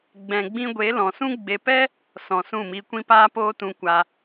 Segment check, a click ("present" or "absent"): absent